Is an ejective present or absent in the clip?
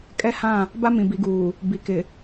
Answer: present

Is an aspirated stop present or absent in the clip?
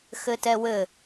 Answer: absent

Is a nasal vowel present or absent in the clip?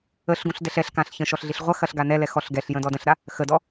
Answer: present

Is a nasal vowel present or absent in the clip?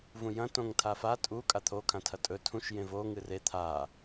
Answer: present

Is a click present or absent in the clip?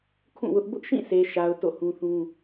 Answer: absent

